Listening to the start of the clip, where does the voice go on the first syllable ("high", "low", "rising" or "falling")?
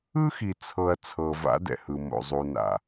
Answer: high